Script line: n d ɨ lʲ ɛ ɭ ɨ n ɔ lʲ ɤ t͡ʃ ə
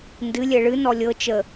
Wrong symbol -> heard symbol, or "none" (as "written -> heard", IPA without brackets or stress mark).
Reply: none